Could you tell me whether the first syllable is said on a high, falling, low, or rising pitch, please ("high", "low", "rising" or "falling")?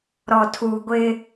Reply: low